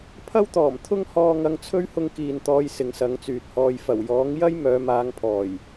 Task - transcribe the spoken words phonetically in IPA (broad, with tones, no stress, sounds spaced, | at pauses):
pʰ ɐ˥ w t̪ ɔː˨˩ m t̪ʰ ʊ˥ ŋ h ɔː˧ ŋ ɐ˧ ŋ t͡sʰ ɵ˥ ɥ h ʊ˧ ŋ k iː˨ n t̪ ɔː˨˧ j s ɪ˨˧ ŋ s ɐ˨˥ ŋ t͡s yː˨ t̚ h ɔː˧ j f ɐ˨˩ w j ɔː˨˥ ŋ j ɐ˥ j m œː˨˧ m aː˨˧ ŋ pʰ ɔː˨˩ j